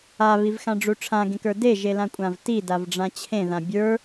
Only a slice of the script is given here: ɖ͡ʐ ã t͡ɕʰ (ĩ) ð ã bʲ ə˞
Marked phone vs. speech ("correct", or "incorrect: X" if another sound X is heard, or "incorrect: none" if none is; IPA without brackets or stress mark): incorrect: ẽ